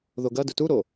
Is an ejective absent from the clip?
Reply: yes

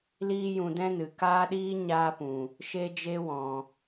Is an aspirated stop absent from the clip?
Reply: yes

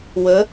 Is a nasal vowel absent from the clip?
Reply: yes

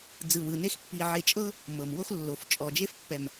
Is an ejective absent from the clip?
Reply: no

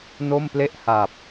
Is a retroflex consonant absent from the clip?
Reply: yes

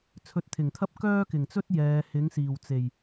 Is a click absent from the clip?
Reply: yes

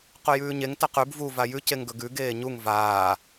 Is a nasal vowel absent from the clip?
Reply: yes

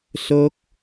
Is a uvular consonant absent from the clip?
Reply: yes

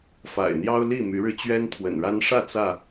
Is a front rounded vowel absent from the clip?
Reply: no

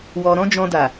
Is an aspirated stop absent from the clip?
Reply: yes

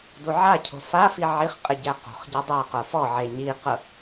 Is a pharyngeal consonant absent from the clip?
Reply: no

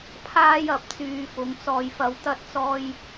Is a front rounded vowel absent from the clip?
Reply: no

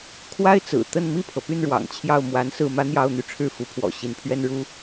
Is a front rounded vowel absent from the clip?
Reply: no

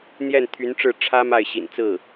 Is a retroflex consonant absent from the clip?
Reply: no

